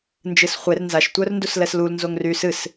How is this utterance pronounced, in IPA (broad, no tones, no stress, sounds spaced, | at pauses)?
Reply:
n d͡ʒ ɨ s χʷ e r n z a ʃ tʷ œ r n d u s l ɛ s l u l n z o ŋ r y s ɨ s